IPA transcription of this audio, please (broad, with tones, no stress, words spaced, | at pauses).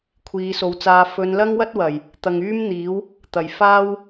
kʷʰiː˨˧so˨˧wt͡saː˧ fɵ˨˧n lɐ˥ŋwɐ˥t̚wɐ˨˩j | t̪ɐ˨ŋ yː˥mn̪iː˨˥w | t̪ɐ˨˩j faː˥w